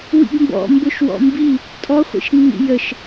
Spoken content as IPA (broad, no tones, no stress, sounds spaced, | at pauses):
w ḭ ɡ m b ɔ̰ m b ʊ ʃ w ɔ̰ m b i | tʼ ɔ χʷ ḭ ʃ nː ḭ j ə ʃ